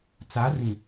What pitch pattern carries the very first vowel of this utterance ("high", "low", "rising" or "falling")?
rising